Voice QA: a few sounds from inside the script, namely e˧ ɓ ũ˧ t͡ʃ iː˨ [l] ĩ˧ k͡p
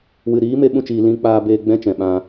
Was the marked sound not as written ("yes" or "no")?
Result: no